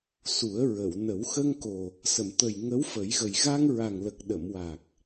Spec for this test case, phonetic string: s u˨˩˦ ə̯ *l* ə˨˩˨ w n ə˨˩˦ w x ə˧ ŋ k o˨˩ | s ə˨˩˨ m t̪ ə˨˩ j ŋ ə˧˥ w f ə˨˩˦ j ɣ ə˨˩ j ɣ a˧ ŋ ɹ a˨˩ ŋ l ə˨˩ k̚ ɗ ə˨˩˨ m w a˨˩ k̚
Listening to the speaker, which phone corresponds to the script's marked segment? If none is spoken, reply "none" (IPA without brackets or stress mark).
ɹ